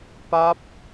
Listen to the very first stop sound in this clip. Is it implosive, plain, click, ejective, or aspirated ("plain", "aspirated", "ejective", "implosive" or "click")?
plain